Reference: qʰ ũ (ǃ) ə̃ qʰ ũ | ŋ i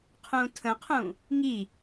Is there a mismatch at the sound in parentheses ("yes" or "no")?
yes